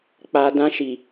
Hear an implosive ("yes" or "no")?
no